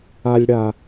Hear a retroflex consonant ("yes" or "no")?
yes